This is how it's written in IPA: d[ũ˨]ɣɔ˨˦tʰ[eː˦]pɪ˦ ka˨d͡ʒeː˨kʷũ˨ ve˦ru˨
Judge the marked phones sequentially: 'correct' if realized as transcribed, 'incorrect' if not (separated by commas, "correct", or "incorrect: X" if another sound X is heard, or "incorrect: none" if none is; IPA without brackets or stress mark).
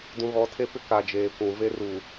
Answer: correct, incorrect: e˦